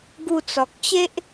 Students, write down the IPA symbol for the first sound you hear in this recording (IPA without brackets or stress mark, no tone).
ɡ